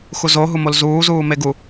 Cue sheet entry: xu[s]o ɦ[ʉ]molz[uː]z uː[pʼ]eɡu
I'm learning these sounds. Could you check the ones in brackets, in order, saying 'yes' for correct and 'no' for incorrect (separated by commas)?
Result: no, no, yes, no